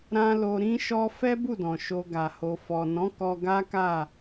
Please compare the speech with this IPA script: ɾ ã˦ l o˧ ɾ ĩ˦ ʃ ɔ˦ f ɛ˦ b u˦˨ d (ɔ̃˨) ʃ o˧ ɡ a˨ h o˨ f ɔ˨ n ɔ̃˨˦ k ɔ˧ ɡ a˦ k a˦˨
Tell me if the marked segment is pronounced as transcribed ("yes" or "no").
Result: yes